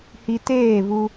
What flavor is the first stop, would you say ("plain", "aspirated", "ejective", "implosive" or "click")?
plain